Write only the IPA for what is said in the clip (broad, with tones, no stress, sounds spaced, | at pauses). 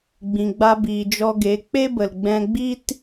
ɡ͡b ĩ˨ ɡ͡b a˧ b iː˨ d͡ʒ ɔ˧ ɡ e˨˦ k͡p e˦ b ə˨ l ɡ͡b ɛ̃˧ ɡ͡b i˦ t